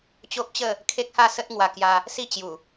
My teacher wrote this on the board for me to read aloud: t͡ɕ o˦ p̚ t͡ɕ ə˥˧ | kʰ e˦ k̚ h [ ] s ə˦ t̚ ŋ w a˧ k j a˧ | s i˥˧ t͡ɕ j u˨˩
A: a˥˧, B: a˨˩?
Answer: A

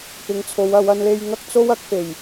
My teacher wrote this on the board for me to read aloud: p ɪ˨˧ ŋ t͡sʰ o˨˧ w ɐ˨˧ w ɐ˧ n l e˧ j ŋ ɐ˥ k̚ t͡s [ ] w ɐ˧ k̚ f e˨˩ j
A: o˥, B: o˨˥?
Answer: A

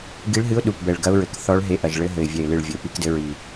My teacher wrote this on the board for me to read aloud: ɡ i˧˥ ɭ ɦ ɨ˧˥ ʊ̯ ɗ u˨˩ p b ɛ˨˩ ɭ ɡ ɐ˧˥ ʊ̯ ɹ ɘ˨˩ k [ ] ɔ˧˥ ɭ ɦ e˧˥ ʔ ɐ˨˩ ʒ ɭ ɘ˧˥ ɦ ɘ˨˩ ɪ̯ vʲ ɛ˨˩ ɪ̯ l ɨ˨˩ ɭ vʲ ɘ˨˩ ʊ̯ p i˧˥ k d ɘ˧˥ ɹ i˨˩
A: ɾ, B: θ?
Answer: B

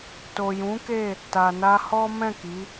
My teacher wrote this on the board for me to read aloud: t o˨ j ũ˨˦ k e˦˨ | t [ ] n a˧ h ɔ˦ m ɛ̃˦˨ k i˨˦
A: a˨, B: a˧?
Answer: A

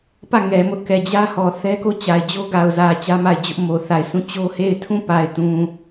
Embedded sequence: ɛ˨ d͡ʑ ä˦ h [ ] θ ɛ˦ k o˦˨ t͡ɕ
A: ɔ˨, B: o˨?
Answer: A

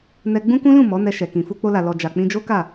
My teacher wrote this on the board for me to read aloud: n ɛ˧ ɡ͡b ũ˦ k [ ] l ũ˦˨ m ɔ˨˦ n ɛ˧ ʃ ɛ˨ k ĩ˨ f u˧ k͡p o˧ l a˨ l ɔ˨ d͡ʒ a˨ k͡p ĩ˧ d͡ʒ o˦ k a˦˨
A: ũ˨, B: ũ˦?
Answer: B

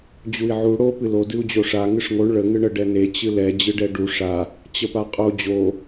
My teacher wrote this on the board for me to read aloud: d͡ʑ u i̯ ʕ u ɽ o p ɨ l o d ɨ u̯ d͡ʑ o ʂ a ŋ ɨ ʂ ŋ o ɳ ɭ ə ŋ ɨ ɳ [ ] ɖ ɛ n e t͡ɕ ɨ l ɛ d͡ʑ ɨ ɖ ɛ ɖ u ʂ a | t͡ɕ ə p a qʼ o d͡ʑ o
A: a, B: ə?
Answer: B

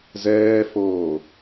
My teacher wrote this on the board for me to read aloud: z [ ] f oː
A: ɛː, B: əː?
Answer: A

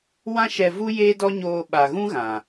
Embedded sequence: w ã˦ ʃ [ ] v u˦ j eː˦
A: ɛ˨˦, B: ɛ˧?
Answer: B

